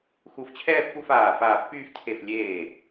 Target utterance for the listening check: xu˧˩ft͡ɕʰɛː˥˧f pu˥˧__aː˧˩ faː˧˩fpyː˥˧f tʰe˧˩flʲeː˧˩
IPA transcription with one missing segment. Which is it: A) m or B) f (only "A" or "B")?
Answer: B